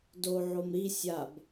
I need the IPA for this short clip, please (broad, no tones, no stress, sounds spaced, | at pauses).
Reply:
d o ʕ o m ɾ i sʲ a b